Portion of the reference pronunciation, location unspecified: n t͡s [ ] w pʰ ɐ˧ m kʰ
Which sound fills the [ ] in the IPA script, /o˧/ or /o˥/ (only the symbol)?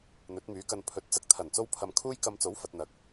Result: o˥